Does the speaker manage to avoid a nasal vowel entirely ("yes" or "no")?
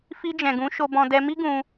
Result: no